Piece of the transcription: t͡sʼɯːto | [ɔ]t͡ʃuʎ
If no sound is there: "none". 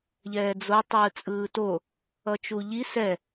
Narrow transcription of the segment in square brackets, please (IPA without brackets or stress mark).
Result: ʌ